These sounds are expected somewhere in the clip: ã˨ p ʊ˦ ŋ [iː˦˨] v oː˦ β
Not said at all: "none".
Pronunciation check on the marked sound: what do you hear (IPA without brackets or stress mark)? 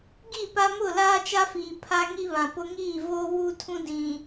iː˦˨